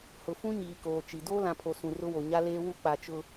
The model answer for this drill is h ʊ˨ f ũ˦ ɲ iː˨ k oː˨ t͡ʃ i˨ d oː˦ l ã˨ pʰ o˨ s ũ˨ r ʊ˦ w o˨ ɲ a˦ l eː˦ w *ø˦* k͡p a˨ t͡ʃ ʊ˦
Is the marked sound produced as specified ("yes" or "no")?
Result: no